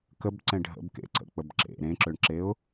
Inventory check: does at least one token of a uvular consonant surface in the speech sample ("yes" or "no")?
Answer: no